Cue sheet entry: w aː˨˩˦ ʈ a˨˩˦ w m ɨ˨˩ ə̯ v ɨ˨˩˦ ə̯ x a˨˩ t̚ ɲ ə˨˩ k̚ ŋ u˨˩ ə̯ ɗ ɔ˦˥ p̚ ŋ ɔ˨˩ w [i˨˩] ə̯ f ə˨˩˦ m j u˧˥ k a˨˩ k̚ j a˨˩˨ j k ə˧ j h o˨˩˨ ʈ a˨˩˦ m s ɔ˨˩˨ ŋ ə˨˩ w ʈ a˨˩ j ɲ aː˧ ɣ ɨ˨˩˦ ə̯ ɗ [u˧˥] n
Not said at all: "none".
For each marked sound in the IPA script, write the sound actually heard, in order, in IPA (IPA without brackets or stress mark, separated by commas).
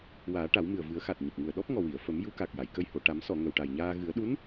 i˨˩˨, u˧˥